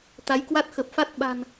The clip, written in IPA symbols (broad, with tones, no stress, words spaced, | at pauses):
t̪a˨˦jkwa˦˥t̚xə˨˩p̚fa˦˥t̚ ɓa̤˨˩n